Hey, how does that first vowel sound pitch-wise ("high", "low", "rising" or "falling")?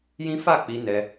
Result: high